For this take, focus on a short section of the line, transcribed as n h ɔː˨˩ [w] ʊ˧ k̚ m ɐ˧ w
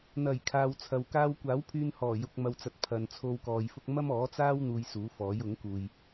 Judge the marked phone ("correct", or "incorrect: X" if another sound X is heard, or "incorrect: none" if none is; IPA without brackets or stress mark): incorrect: j